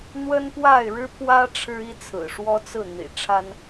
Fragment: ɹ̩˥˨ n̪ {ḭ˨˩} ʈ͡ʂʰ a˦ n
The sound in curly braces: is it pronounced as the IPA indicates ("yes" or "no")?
yes